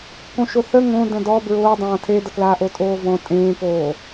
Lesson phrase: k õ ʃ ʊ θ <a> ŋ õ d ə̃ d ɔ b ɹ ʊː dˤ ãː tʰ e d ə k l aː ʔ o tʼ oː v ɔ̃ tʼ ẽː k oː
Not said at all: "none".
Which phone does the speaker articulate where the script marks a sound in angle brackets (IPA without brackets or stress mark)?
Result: ə